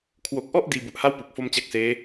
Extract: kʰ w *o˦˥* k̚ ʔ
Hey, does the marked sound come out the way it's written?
no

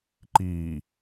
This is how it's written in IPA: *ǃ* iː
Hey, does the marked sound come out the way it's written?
yes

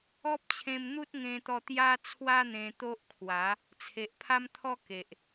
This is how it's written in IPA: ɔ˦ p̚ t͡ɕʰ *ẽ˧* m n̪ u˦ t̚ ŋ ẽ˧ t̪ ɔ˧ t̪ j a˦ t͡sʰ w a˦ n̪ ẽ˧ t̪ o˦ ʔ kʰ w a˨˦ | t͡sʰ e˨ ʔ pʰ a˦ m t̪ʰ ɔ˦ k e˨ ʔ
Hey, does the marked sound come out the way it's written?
yes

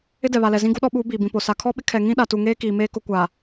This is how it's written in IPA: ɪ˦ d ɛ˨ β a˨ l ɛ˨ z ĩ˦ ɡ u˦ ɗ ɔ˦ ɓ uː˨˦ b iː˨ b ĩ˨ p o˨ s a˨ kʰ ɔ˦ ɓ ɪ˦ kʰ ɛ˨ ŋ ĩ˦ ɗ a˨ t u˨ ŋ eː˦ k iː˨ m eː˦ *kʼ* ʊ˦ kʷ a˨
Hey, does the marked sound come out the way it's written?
no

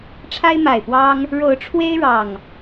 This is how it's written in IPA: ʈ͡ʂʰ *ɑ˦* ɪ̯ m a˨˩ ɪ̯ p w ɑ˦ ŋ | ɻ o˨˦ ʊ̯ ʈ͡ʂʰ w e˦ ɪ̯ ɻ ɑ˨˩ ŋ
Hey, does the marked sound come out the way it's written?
no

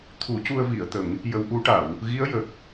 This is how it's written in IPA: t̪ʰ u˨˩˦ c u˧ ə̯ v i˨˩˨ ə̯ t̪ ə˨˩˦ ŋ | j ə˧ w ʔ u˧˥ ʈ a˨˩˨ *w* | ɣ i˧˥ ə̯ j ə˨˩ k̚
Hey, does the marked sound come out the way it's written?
yes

